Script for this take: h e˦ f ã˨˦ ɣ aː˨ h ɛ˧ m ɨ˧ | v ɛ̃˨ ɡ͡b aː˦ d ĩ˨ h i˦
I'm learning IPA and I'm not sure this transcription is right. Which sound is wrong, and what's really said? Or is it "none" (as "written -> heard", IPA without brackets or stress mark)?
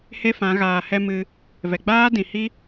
ɛ̃˨ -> ɛ˨